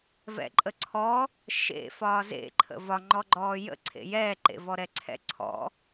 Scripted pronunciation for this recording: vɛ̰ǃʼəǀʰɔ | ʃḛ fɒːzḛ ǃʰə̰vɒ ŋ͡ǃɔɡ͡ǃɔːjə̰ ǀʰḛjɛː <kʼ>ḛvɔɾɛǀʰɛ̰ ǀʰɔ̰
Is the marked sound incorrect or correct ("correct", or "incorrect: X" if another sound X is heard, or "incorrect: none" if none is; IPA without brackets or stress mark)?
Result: incorrect: ǃ